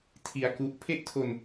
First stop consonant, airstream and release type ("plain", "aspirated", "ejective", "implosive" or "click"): aspirated